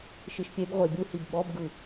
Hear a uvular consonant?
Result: yes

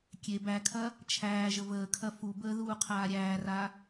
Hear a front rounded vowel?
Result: no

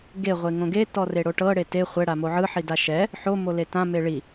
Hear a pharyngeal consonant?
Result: yes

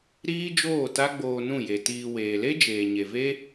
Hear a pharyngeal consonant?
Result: no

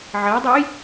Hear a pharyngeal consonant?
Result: yes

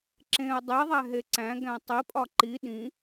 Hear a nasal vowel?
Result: yes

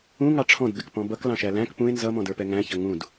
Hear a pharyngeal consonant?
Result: no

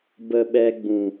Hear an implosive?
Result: yes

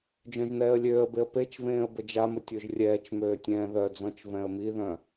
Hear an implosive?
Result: no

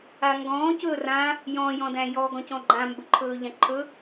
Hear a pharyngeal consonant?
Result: no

